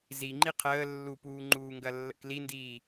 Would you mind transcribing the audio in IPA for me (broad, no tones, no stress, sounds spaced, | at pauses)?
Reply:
z i ŋ͡ǃ i qʰ əː lː u p uː ŋ͡ǃ uː ŋ ɡ ɐ lː ə̰ k l i n d iː